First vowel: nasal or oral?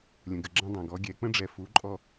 nasal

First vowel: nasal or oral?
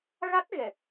oral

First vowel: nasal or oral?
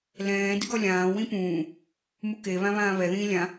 nasal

